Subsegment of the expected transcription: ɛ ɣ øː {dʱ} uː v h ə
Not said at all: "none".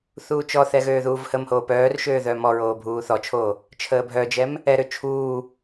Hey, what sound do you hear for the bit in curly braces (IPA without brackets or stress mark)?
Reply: ð